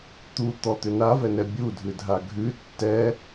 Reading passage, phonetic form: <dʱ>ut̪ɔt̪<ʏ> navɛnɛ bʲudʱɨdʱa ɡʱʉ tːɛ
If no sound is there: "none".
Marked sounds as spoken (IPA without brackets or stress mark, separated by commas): t̪, ʏ